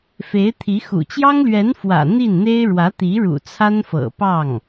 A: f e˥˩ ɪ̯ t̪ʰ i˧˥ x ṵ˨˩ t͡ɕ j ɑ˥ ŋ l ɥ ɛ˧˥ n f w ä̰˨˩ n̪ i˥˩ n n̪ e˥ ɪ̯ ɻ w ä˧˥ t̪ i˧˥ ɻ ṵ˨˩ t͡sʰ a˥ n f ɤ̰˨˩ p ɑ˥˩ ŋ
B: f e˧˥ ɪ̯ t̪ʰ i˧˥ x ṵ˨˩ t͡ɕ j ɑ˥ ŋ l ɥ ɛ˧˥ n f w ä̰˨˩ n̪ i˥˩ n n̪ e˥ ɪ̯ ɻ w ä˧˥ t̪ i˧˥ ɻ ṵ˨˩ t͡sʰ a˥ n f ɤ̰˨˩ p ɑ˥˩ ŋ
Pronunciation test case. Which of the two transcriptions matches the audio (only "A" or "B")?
B